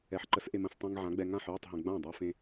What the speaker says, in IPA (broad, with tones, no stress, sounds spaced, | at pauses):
ɛ˨˥ ħ ǃ ə˨˥ s ʔ e˧ m ə̃˧ s tˤ ĩ˧ ŋ ʕ ã˨˥ ɡ͡b ɛ˧ ŋ ã˥˩ ħ j i˥˩ tˤ ɦ ɛ̃˧ ɡ͡b ã˥˩ dˤ ɜ˧ f ẽ˧